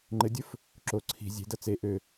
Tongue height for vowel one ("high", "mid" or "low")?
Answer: mid